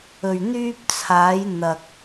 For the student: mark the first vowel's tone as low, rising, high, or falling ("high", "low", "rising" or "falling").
low